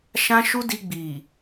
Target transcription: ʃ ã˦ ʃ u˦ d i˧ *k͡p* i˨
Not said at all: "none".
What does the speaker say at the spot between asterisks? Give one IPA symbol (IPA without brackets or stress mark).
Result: ɡ͡b